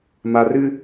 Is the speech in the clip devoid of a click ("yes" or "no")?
yes